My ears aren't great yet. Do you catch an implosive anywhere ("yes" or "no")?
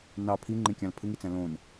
no